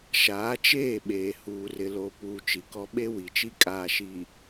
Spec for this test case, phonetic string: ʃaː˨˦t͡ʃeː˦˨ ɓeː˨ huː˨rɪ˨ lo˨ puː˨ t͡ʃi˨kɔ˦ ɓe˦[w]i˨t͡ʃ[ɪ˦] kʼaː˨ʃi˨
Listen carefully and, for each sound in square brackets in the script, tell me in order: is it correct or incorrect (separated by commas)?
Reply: correct, incorrect